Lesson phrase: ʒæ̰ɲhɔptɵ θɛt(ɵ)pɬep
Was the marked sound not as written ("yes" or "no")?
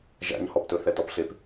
yes